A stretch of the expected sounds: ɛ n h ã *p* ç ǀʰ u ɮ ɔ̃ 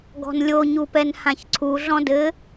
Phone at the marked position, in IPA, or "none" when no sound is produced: none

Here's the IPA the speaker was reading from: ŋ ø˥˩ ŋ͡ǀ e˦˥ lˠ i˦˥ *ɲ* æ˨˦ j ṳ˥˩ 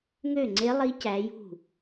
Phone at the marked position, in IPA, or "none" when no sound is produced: c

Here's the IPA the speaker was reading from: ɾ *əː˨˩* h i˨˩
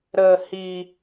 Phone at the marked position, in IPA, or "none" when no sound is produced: əː˨˩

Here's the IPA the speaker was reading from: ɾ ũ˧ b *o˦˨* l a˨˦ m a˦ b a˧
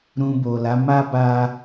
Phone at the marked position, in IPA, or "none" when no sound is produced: o˨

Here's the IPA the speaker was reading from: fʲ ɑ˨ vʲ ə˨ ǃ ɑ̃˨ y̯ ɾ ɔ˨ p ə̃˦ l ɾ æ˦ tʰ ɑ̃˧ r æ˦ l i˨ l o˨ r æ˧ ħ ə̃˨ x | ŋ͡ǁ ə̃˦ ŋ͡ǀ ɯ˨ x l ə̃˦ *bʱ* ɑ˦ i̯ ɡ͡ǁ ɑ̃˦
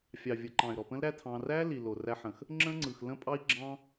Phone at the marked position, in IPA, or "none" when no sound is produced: pʼ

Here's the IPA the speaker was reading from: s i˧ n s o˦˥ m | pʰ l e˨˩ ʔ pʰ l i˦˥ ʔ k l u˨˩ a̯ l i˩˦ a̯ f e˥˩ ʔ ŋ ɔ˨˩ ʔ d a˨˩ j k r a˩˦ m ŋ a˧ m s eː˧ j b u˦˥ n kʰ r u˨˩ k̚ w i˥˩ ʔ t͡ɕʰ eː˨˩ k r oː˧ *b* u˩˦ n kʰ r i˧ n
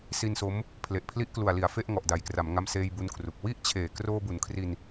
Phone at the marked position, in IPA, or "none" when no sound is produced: b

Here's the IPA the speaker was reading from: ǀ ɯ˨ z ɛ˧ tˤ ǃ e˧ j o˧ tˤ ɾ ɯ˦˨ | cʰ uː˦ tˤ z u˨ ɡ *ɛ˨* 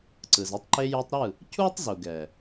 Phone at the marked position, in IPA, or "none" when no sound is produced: ɛ˨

